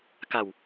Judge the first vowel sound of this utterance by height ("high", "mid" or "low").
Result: low